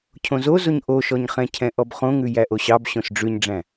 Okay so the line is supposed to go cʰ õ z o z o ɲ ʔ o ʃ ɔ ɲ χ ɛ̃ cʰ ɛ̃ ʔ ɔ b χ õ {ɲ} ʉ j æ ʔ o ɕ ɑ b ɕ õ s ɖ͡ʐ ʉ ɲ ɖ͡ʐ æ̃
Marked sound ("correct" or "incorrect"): incorrect